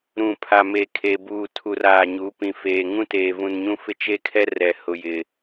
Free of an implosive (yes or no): yes